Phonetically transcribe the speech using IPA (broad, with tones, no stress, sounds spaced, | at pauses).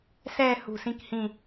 s ɛː˥˧ h ṳ˧˩ s ĩ˥˧ k h ĩ˧˩